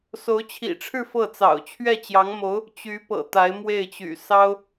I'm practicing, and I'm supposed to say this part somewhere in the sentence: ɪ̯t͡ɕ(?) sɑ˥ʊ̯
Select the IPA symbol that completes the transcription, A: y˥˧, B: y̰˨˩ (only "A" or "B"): B